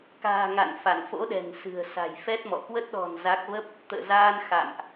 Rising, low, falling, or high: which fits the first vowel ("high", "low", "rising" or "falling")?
low